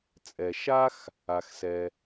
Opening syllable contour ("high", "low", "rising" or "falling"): low